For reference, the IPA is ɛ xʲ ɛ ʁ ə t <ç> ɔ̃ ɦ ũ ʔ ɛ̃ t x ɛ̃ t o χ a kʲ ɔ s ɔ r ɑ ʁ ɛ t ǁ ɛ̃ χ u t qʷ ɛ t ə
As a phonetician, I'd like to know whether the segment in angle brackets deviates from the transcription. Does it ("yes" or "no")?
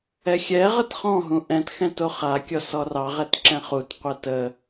yes